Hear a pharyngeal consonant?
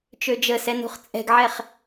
yes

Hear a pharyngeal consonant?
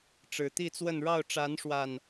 no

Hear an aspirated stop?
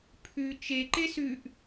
yes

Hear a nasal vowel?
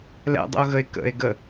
no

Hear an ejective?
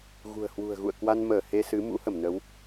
no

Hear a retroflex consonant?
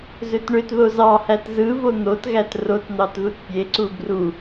yes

